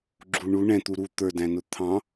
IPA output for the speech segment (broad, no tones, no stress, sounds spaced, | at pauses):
ɡ͡ǁ u ɳ u ɳ ɛ̃ t̪ u ɾ u t̪ ə˞ d æ̃ n ʊ t̪ʰ ɑ̃